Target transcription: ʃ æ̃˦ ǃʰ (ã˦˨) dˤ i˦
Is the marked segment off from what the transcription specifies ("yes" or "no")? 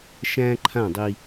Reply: no